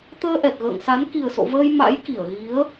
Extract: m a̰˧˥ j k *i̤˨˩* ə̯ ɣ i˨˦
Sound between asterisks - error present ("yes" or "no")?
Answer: yes